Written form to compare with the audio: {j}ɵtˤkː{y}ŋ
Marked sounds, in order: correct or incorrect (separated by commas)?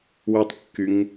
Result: incorrect, correct